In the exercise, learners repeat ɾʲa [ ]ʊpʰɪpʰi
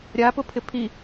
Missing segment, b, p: p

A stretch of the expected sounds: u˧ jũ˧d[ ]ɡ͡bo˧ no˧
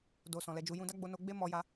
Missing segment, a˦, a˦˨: a˦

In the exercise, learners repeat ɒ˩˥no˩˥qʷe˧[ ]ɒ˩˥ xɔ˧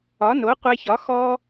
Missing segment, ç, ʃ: ç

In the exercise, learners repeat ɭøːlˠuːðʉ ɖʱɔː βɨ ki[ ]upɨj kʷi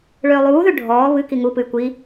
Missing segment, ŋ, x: ŋ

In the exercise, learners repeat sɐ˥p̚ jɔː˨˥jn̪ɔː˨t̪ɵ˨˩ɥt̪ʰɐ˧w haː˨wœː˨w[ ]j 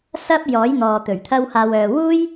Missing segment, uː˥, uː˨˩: uː˥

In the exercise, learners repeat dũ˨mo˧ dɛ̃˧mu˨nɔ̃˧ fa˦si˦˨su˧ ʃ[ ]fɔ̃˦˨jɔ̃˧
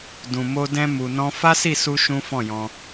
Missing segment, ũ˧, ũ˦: ũ˦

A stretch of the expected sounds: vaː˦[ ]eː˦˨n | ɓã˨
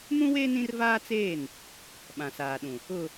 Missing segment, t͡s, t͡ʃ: t͡s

